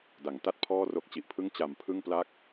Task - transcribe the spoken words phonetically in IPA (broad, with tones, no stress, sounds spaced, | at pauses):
d a˩˦ ŋ t a˥˩ t̚ pʰ ɔː˥˩ r o˦˥ k̚ t͡ɕ i˨˩ ʔ pʰ ɯ˥˩ ŋ t͡ɕ a˨˩ m pʰ ɯ˥˩ ŋ p l a˥˩ k̚